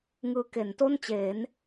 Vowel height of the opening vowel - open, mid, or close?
close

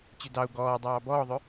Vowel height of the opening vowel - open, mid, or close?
close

